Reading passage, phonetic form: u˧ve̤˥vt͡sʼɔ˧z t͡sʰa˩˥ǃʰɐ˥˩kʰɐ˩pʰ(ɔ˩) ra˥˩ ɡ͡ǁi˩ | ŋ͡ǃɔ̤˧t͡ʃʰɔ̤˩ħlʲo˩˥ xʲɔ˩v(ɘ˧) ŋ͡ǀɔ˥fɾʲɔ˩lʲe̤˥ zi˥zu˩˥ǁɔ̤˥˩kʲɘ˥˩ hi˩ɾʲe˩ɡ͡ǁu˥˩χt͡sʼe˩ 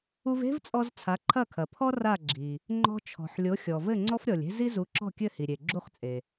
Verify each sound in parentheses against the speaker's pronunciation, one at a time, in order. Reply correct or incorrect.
incorrect, incorrect

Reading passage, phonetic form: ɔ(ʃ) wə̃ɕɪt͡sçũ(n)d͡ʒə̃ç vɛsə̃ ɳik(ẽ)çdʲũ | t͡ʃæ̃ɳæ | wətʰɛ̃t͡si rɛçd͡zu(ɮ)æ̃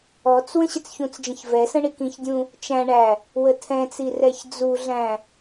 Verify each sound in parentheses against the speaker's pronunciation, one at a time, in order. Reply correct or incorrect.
incorrect, incorrect, incorrect, correct

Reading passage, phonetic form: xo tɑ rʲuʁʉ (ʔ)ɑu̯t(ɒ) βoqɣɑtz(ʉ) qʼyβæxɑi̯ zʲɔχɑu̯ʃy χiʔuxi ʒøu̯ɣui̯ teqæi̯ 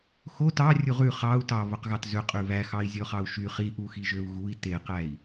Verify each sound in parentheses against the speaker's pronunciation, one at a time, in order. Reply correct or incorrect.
incorrect, incorrect, incorrect

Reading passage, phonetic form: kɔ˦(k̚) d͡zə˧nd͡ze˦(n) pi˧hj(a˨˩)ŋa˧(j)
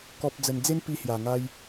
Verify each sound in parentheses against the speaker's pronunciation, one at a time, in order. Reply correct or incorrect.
incorrect, correct, correct, correct

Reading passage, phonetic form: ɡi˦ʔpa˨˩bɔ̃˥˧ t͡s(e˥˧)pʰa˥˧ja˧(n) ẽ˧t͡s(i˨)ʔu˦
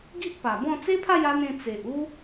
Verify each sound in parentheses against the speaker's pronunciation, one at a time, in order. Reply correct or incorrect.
incorrect, correct, incorrect

